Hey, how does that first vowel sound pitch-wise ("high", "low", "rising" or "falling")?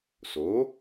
rising